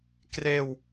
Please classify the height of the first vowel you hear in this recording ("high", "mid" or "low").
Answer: mid